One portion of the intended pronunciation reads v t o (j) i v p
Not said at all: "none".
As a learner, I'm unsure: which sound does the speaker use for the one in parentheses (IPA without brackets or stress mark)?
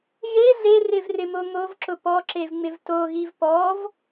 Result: ɣ